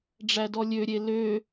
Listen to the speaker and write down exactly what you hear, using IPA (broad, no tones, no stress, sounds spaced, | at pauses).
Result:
ɖ͡ʐ æ d ɔ lʲ ø ɾʲ e l ø